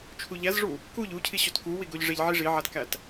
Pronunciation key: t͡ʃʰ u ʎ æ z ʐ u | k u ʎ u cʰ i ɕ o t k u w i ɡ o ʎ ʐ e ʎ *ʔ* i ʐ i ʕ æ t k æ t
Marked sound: incorrect: ʕ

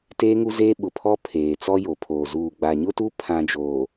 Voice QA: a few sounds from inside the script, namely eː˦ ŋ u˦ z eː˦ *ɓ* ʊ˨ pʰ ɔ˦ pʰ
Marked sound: correct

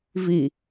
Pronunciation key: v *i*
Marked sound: correct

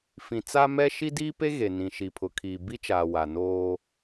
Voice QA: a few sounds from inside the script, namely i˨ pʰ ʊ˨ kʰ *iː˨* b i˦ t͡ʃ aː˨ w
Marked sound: correct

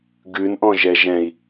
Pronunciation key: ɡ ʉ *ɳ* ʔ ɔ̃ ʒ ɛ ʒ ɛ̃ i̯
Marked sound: incorrect: n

